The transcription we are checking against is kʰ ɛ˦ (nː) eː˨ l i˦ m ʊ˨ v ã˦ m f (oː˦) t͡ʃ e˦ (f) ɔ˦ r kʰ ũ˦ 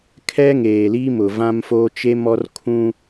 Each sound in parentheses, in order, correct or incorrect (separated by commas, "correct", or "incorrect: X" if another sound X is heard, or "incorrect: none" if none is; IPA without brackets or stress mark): incorrect: ŋ, correct, incorrect: m